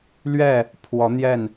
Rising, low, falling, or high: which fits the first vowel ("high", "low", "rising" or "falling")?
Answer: falling